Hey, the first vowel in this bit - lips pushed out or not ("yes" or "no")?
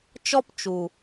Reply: yes